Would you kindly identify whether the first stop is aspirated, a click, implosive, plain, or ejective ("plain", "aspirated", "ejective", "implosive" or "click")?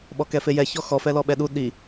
implosive